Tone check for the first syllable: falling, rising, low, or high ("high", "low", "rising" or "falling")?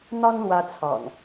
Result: high